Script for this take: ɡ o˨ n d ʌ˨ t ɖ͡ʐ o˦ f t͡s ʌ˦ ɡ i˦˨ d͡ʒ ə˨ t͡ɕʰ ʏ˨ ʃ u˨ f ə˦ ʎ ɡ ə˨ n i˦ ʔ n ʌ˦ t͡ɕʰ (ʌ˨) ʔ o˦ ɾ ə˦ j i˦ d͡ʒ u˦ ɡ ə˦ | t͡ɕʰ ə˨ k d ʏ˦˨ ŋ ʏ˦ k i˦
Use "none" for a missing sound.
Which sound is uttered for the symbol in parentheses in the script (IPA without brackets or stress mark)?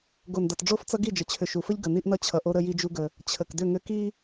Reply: ʌ˨